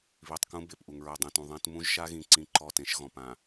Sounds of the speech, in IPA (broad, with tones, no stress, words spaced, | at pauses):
βi˨tˤkũ˦ be˨pʔu˨ŋ ɹɛ˨dˤɛ̃˨tũ˨ ðˤẽ˦t mũ˦ʒʃa˦ɣĩ˨ ǀĩ˦ǃɔ˦˨tẽ˦ʃ ɣɔ̃˨p ã˨